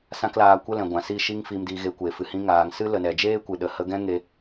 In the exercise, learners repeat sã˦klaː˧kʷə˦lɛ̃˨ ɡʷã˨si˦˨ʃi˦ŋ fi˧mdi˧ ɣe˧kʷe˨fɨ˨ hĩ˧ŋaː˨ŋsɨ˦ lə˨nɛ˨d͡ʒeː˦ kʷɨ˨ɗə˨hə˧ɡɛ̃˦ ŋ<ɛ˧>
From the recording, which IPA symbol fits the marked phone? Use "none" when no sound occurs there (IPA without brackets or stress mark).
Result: e˧